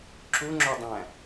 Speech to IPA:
ǁ u ŋ͡ǁ o dˤ æ̃

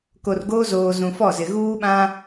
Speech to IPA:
k o˨ r ɡ oː˦ z oː˨ z ũ˨ f ɔ˦˨ z ɪ˨ ɣ uː˦ ɓ ã˦

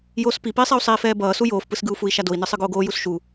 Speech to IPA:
j oː s p i p iː sˤ e u̯ sˤ iː f ɛː b ʌː s u j oː f p ɯ s ɡ ɯ u̯ f u i̯ ʃ a d o i̯ n ɯ sˤ ɯ ɡ oː ɡ oː j u s ʃ u

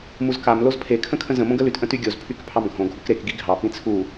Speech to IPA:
m u z k a m l o z pʰ e kʰ ə̃ kʰ ə̃ z ə̃ m õ ɡ ə l y t ʔ ə̃ t y ɡʲ o z pʰ y k pʰ ɑ m ɡʱ õ ɡʱ u k ɾ e k ɡ i ɡʱ ɑ p ĩ t͡sʰ u

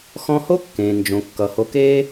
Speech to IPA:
x ɔ̃˦ h o˥ kː ẽː˩ n d͡ʒ õ˩ kː ʌ˩ h o˨ k e˥

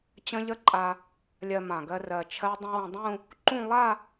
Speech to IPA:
t͡ɕ ə̃˦˥ ʎ ə˦˥ ǃʼ a˧ | lʲ ɜ˧ m ã˨˩ ɡ ɜ˧ r ɜ˨˩ t͡ʃʰ ɜ˦˥ dˤ ə̃˦˥ w ə̃˧ dˤ ũ˥˧ | ǃ ũ˥˧ lˠ a˥˧

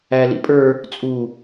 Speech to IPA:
æ l ḭ pʼ ə˞ | t͡sʼ u

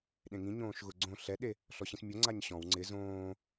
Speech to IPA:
ɗ ẽ ŋ ĩ ɲ õː ʃ ɣ ʊ ɡ͡ǀ õ ɬ ɛ ɗ e | ɬ ɔ ɕ ĩ s mʲ o ŋ͡ǀ a ɲ ɕ ɔ̃ w ŋ͡ǀ ɪ z õː

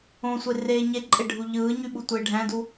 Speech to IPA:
õ sʷ e r eː ɲ e ǃʼ e ɖʱ u ʎ ɯː ɲ y ɓ u tʷ eː ɖʱ æ̃ d u

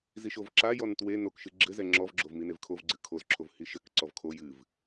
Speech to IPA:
z i ʃ o v ǁ a j ɔ n t w e n o k ʃ ɨ ɡ͡ǁ ɘ z ɛ ŋ͡ǁ ɔ v ɡ͡ǁ o v m i n e v kʰ o v ɡ͡ǀ ɨ kʰ o z ǁʰ o v h i ʃ ɘ k ǀ ɔ v kʰ o j ɨ v

